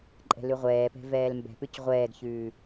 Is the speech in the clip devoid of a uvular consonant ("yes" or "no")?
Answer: no